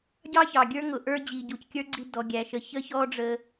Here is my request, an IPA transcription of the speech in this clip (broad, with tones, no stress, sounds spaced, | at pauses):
ɟ ɑ˥ ç ɑ˩ ɡʲ ə˞˥ ŋ ʊ˩ ʔ ə˞˧ d͡ʑ i˩ ɟ u˩ c kʲ ə˞˥ ɡ͡ǀ i˧ d ɔ˩ ɡʲ æ˩ ʃ ə˩ ç ə˥ ç ɔ˥ ɖ͡ʐ ə˧